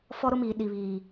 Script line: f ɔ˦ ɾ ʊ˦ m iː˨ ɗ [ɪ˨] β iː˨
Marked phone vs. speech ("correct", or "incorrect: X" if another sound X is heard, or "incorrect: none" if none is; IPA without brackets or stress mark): incorrect: i˨